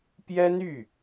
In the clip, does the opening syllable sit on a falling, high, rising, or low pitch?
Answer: high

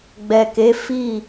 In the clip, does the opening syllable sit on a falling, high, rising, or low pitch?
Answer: low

